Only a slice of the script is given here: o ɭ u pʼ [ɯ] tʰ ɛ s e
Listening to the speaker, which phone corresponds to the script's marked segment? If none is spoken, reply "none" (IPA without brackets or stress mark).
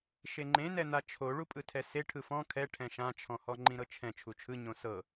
ɯ